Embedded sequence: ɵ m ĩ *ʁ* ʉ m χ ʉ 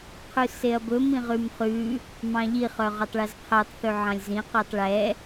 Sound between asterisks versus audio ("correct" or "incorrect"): correct